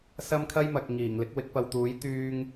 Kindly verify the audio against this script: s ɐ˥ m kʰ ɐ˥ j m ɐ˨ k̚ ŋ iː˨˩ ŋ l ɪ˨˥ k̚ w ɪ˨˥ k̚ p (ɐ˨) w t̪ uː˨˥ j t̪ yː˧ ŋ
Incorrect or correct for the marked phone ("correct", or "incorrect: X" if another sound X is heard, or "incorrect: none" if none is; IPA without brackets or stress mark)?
correct